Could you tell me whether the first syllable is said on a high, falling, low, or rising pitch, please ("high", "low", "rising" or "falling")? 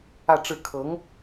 falling